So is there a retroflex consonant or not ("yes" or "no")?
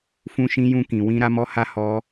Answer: no